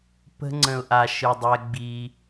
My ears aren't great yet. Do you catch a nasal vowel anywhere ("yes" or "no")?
yes